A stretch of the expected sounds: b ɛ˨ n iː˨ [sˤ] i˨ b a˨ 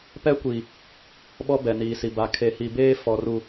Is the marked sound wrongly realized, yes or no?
yes